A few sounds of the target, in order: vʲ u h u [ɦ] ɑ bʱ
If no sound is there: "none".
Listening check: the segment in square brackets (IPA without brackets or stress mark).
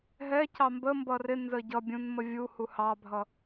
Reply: h